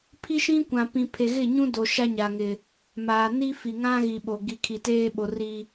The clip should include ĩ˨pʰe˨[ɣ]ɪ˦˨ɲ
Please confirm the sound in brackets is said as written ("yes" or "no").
yes